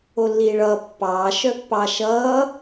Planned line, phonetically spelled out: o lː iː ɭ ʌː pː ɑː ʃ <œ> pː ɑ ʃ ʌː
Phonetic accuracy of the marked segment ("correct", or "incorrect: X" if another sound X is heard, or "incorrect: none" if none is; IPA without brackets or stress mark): correct